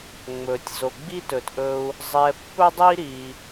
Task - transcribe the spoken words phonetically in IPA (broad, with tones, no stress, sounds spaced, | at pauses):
ŋ͡m ɵ˨ tʲ z o˨ ɡ͡b i˦ t ɵ˨ t ʔ ɵ˧ u̯ | zˤ ɛ˧ pː ɵ˦ dˤ i˦ ɾ i˧